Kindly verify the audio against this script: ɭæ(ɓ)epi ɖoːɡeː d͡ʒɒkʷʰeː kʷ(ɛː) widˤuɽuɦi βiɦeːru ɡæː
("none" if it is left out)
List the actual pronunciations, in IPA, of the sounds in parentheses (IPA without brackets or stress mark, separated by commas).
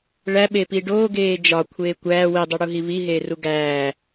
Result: ɓ, æː